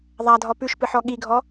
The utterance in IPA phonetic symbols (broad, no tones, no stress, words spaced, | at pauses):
ðˤadʱɔ pʉʃpɨħɔ ɠiɡʱɔ